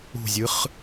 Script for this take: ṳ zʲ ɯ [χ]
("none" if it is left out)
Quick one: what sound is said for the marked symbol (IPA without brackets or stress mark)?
χ